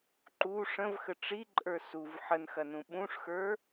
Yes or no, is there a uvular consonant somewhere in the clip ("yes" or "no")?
no